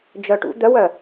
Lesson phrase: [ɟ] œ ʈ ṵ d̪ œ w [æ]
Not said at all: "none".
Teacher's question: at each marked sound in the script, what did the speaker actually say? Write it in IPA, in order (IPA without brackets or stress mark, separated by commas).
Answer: d͡ʒ, œ